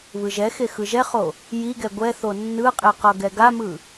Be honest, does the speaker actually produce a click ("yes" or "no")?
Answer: no